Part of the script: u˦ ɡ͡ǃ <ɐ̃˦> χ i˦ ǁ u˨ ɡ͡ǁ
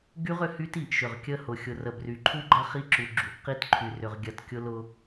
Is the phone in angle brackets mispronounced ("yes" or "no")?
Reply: yes